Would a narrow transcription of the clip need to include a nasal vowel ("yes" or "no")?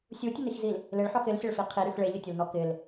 no